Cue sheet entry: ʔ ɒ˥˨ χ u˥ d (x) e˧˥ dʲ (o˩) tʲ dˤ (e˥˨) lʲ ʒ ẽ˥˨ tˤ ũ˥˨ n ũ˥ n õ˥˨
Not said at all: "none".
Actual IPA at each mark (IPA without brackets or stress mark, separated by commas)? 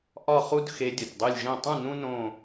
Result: x, o˩, e˥˨